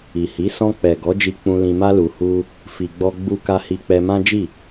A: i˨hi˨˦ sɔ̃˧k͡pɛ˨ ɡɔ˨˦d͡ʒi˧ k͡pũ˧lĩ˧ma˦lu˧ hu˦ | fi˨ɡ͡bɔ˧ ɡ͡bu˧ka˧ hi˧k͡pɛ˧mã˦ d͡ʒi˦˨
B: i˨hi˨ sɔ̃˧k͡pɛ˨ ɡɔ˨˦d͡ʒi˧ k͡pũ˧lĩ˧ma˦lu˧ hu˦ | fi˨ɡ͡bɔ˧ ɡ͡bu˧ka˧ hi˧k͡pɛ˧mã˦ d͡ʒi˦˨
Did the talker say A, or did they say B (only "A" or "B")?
A